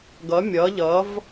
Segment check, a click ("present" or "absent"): absent